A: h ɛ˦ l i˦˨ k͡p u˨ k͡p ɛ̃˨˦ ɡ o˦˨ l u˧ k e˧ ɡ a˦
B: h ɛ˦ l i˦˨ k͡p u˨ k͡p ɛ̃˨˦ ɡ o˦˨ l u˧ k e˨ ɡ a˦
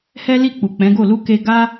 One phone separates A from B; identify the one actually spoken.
A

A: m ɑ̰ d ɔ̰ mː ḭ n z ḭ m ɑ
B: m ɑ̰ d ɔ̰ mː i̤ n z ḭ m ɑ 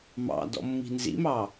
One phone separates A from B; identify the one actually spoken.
B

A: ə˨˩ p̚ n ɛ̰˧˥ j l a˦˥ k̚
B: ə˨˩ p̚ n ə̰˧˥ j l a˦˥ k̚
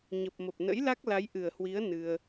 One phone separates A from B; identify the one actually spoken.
B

